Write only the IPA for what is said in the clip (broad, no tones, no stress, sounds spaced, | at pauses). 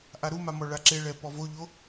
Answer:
ʔ a ɾ u m a m ɔ ɭ a ǁ e ɭ ɛ p ɔ v o ʎ o